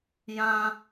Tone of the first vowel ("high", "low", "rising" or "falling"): high